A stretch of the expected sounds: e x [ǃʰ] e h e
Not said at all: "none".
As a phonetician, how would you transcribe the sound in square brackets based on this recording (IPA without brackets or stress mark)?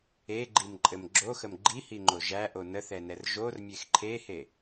ǃʰ